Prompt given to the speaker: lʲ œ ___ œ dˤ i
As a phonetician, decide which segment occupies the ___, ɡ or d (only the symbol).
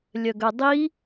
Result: ɡ